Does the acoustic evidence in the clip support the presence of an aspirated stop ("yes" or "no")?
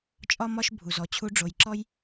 yes